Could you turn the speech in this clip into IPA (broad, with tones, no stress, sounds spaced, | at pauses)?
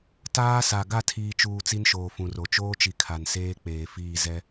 t aː˦ s a˨ ɡ a˦˨ tʰ iː˨ t͡ʃ uː˨ t͡s i˦ n ʃ oː˨ f ũ˨ r o˨ t͡ʃ oː˦ t͡ʃ i˨ kʰ a˨ n s eː˦ k͡p eː˨ f iː˦˨ z ɛ˦